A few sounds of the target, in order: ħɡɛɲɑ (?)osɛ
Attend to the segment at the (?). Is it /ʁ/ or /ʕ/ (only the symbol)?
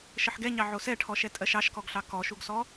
ʕ